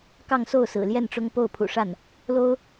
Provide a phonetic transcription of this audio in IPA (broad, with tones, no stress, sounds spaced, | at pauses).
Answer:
k ɑ˥˧ ŋ s o˥˩ ʊ̯ s ɹ̩˨˩ l j ɛ˥˩ n ʈ͡ʂ ʊ˥ ŋ p o˥˩ ʊ̯ pʰ ṵ˨˩ ʂ a˥˩ n | l o˥ ʊ̯